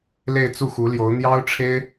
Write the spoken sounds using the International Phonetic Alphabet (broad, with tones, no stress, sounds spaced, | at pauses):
l e˥˧ ɪ̯ t͡s u˥˩ x u˧˥ l j o˧˥ ʊ̯ n̪ j ɑ˥ ʊ̯ ʈ͡ʂʰ e˥ ɪ̯